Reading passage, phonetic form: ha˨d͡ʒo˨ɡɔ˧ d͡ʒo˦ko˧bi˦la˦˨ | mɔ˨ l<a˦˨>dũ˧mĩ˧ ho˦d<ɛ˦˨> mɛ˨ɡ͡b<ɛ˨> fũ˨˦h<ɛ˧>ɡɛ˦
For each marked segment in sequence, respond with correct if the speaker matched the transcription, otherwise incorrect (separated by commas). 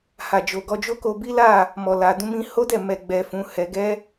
incorrect, correct, correct, correct